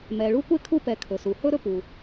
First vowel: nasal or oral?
oral